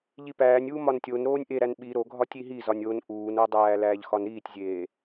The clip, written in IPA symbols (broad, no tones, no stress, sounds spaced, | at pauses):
ʎ i p æː nʲ uː m ɒ n tʲ o n ɾ oː nʲ ʔ e ɾ æ n ɓ i ɾ o ɡʱ ɒ tʲ i ɦ i z ɒ nʲ o n ʔ uː n o dˤ æː l æː ʎ x ɒ n ɾ iː tʲ zʲ eː